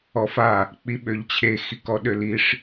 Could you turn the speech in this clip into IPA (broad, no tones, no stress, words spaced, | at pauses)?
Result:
ɔfa | k͡piɓøʎt͡ɕʰe xikɔɗøliʂ